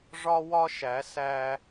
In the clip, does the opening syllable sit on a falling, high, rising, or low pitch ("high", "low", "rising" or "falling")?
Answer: high